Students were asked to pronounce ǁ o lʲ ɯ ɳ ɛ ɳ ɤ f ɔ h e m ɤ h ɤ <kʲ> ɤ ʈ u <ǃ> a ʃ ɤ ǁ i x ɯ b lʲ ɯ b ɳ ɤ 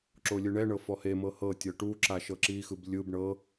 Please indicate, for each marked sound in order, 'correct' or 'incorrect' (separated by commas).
incorrect, incorrect